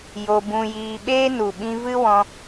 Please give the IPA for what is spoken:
jo˧bũ˧jiː˧ ɓeː˦nu˨ɓĩ˧vɨ˦ wɔ̃˧

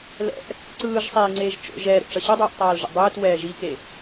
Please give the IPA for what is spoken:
lɛ̰ʔ | ǀɯːʒsˤeːŋ͡ǀeːʒ t͡ʃo̰ʒ ɛːɾo̰ʈ͡ʂʌ ɕɯdˤoːʔtˤaːlʒo̰ dˤɯːtwɛː ʒike

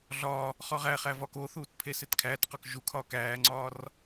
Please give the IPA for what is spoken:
ɮɒː | χɒʁæχæ vɒːkoθuːt pʰesetkʰæːtqɒk ʒukʰɒːk æːŋ͡ǀɒːr

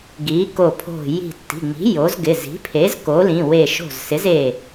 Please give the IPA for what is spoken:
ɡi˩˥ko˧˩pʰo̤˧˩ ji̤˧˩tːi̤˩˧˩ŋ͡mi̤˩˥ jo˩˥zɡɪ˩˧˩ zi̤˩˥pʰe˩˥z ko˩˥lĩ˩˧˩we˧˩ ʃo̤˧˩zsɪ˩˥ze˧˩

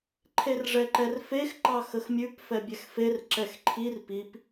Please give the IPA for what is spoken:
ǃʰerʐɛǃɛrfex ǃɑxəxmʲʉp fɛbʲɛxfer ǁɛxǃʰir pip

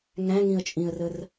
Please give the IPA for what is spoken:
ŋæ̃ŋĩə̯t͡ʃʼĩə̯rər

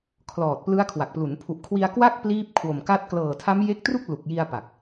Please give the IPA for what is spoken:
kʰlɔː˨˩t̚plɯ˦˥a̯kʰwa˨˩k̚plu˩˦n pʰu˨˩ʔkʰwi˧a̯kwa˥˩k̚ pliː˦˥p̚ kʰwo˨˩mka˦˥t̚ klɤː˨˩tʰa˦˥mje˦˥k̚tru˥˩k̚ lu˨˩k̚ji˧a̯ pa˨˩k̚

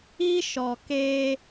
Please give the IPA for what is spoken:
i˦ʃɔ˨ ke˦

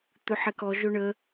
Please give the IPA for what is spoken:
t̪ɵħɛkɔ ʒɵɳə

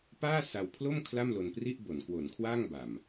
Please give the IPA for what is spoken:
paː˥˩ sa˧wpʰlo˥˩m kʰla˥˩mlo˧npri˥˩ʔbo˩˦n kwo˩˦nkʰwaː˥˩ŋba˨˩m

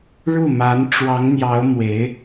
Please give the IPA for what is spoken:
ɻu˥˩ma˧˥n ʈ͡ʂwɑ˧˥ŋn̪jɑ˧˥ʊ̯ mwe˧˥ɪ̯

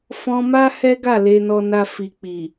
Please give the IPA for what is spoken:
fɔ̃˧ma˦ hɛ˦ɡa˦˨ le˨nɔ˨na˨ fi˨k͡pi˨

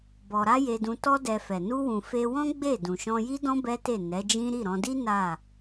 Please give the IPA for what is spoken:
bɔ˧ ɾa˦je˧dũ˧ tɔ˦dɛ˧fɛ˨ nu˧wũ˨ fe˧wɔ̃˦ ɡ͡be˦˨ dũ˨ʃɔ̃˧ji˦dɔ̃˦ bɛ˦te˦˨ nɛ˨˦d͡ʒĩ˦ ɾi˦˨ɾɔ̃˧di˦ na˦˨

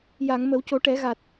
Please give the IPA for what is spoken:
ja˨˩˨ŋmə˨˩˦wco˨˩˦ ʈɛ˨˩˦ɣa˨˩t̚

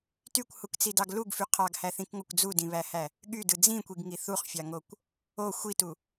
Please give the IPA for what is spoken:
tykʷhukt͡sidɑɡ luɡfy qʰɑɡhæθĩkŋokʷ d͡zudĩβæhæ | ɠydɯ d͡zĩkʷiɡŋi θuχfʲɑŋokʷ | o xʷitu

